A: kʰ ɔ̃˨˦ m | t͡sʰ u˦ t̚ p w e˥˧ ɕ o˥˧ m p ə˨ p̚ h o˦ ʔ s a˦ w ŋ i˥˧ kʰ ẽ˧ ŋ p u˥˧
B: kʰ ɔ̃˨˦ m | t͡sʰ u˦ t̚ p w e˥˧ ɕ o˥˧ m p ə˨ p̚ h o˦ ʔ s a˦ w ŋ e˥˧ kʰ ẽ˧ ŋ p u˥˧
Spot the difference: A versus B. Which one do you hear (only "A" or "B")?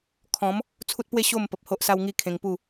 A